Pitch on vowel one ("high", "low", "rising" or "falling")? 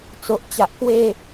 low